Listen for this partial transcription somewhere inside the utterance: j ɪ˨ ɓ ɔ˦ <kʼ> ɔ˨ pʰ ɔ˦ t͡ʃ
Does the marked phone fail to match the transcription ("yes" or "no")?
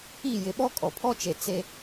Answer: no